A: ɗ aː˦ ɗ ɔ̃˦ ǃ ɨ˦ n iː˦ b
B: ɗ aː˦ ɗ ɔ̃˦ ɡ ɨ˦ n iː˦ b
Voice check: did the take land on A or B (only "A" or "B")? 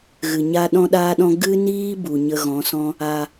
B